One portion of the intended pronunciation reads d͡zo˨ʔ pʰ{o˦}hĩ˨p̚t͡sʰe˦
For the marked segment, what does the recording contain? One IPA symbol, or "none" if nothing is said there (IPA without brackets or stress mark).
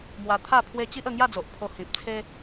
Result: o˧